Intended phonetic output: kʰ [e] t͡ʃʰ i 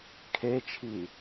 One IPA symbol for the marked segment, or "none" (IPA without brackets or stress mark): e